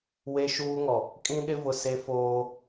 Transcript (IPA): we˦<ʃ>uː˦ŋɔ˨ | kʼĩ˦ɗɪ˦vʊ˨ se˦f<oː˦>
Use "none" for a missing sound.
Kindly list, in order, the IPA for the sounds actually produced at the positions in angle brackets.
ʃ, oː˦

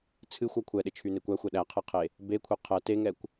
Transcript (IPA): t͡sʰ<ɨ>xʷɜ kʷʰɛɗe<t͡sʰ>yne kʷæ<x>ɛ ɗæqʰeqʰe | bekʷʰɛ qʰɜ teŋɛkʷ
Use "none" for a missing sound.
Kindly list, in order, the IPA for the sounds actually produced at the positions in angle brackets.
ɨ, t͡ʃʰ, xʷ

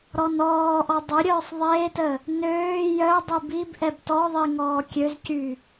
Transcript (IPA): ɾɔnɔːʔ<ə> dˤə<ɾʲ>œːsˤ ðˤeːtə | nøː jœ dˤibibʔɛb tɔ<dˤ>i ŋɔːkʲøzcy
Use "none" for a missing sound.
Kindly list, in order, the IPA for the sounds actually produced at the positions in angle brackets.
ɔ, ɾʲ, ðˤ

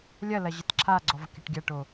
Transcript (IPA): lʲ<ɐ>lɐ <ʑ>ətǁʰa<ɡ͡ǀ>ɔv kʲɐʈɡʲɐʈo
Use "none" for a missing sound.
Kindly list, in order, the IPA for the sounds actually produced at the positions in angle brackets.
ɐ, ʑ, ɡ͡ǀ

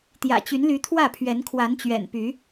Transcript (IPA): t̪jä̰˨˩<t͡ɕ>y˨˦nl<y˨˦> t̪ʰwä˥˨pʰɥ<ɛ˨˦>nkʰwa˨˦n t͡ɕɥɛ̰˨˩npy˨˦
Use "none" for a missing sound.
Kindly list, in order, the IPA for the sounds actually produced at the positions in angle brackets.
t͡ɕ, y˨˦, ɛ˨˦

